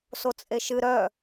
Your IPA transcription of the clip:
sot͡sʼeʃɨ ɾœ

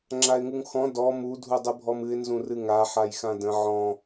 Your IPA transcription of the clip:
ŋ͡ǁaɪ̯ŋuŋxɔ̃ dɔ mu dʱudˤɨbʱɔmɨɪ̯ nzũrɨŋa ħajxãdə̃ ʕɔ̃

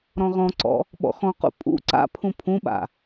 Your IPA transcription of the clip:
ɾɔ̃ʁɔ̃ǀɔ̰ | ɓɔ̰xɔ̃qṵ pʼṵ ǀa̰pʰũ pʰũɓa̰

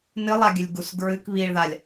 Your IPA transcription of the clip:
nɨlˠaɡʲɨlʲ ɡusɡɹɨk βiɭðalʲ

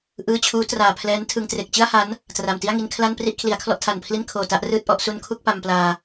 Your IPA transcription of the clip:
ʔɯː˧t͡ɕʰuː˦˥ traː˨˩pʰlɛː˦˥ntʰɯ˧ŋ tre˨˩k̚t͡ɕɯ˥˩a̯ha˦˥n | tra˨˩mti˥˩a̯ŋi˧n kʰla˥˩npri˥˩ʔ kʰli˩˦a̯kʰlɔ˥˩ʔtʰa˨˩npʰli˥˩n kʰoː˨˩ta˥˩ʔrɯː˥˩t̚ʔɔ˥˩ʔ su˦˥n kʰu˥˩k̚pa˧mplaː˧

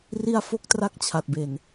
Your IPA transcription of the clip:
ri˥˩a̯fo˥˩k̚tra˥˩k̚ t͡ɕʰa˨˩t̚be˨˩n

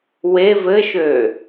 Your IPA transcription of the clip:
we vɘʃø

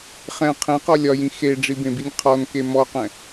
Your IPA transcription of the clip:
χɛ̃ qʰẽqɔ lʲɒjĩ xeɖ͡ʐibẽbinʲ qʰɔnke mɔqɛ̃

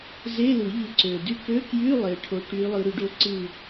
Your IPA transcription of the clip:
ze˧˥˧lɯ˨˩˦ʎɯ˨˦ ǀø˨˩dy˥ kø˧˥˧kjy˧˥˧ lˠe˨˦ ʈʰo˨˦ʈy˨˦ lˠɯ˨˦ɾy˨˦ɖo˥˨ ǀɯ˥˨

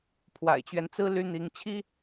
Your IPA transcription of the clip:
pʰwa̰˨˩ɪ̯t͡ɕɥɛ˦nt͡sɹ̩˥ ly˥n̪i˧˥ŋ t͡ɕʰi˥

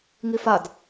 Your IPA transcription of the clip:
ŋifad

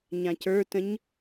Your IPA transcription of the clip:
ɲãcə˞tə̃ɲ

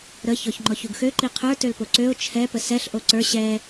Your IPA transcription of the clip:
ɾə çɔçŋ͡ǃɔçuɡxø ǃiqʰə˞ tølpoǀøʊ̯ t͡ʃʰɛ pəsɛɬ ʔoǀə˞ ɕɛ

